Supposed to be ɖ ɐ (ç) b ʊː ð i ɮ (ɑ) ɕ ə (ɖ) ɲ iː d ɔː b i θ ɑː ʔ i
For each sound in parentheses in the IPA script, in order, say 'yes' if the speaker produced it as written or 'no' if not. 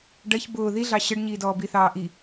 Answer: yes, yes, yes

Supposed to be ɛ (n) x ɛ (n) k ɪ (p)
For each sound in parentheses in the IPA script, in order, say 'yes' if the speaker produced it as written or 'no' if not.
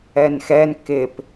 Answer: yes, yes, yes

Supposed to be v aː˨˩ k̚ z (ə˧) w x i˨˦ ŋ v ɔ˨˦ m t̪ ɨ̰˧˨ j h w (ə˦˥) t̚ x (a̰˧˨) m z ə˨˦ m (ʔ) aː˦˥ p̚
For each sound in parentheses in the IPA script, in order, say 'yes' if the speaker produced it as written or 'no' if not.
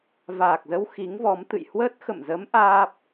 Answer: yes, yes, no, yes

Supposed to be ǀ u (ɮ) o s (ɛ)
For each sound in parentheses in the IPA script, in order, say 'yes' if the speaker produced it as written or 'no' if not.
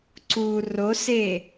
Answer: no, no

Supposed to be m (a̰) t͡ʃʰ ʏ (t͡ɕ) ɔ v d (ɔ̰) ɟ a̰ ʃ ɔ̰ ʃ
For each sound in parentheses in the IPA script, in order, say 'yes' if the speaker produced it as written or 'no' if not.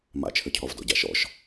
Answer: yes, no, yes

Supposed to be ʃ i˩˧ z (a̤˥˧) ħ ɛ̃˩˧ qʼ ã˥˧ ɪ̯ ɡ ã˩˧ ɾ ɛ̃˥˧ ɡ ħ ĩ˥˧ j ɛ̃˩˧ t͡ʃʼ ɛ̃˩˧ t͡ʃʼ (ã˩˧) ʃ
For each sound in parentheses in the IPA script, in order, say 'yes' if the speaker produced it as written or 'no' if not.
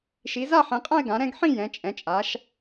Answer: no, no

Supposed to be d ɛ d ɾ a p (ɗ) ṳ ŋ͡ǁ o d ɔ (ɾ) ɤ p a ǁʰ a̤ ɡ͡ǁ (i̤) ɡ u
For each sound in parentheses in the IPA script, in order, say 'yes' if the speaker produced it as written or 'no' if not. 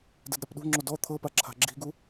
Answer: yes, no, yes

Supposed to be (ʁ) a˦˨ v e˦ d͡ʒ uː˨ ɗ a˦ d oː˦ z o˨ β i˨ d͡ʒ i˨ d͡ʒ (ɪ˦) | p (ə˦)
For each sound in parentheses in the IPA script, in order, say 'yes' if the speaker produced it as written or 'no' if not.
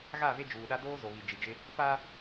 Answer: no, yes, no

